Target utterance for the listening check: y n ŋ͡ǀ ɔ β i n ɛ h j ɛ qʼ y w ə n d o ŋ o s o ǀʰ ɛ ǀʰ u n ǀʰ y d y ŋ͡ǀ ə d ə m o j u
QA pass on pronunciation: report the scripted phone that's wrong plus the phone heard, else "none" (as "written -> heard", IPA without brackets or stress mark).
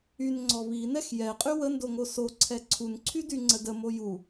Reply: h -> x